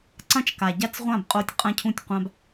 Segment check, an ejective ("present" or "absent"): present